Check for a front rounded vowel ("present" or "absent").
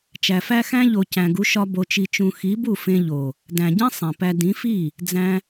absent